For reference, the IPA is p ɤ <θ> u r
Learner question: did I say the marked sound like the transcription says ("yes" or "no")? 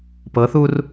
yes